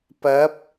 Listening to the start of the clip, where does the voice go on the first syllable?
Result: rising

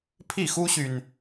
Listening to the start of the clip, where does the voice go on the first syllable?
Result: falling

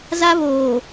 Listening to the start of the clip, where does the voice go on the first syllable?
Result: high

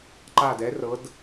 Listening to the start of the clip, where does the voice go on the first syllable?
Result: low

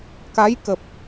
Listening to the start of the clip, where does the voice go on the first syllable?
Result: rising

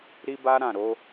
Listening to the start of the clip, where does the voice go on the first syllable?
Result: high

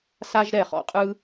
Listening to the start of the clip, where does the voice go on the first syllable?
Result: high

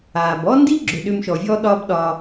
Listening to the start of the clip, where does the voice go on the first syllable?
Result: low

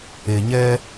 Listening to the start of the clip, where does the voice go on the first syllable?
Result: low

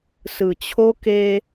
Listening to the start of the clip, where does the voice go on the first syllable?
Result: low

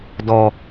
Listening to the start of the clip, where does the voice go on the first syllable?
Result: low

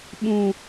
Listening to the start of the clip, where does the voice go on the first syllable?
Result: low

